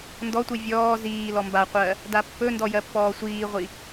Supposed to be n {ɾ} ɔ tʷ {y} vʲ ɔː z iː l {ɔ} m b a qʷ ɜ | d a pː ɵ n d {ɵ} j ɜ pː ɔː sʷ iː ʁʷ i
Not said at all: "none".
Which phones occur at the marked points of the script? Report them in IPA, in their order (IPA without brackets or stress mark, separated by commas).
d, i, ɔ, ɔ